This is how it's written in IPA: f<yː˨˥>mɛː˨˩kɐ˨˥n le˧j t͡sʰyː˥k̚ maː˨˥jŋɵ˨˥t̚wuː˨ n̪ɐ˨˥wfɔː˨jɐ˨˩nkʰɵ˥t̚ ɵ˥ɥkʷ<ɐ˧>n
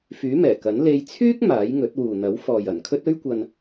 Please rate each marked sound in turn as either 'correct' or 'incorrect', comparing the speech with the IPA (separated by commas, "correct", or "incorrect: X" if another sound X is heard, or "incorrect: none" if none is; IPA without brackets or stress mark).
correct, correct